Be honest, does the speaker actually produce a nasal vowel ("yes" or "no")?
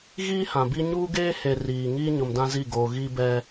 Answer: yes